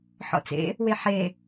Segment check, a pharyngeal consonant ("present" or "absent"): present